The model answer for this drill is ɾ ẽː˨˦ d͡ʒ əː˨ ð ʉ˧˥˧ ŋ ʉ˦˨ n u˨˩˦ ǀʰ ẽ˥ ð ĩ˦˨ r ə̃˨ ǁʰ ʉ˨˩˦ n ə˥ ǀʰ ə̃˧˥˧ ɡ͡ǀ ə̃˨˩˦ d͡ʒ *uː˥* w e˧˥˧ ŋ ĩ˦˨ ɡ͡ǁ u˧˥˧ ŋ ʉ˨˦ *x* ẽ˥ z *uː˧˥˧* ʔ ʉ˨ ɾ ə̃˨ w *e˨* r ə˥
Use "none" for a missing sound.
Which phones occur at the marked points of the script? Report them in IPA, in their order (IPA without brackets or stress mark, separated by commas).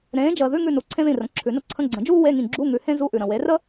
uː˥, h, u˧˥˧, e˨˦